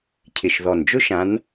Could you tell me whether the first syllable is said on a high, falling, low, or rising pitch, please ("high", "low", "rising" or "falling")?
low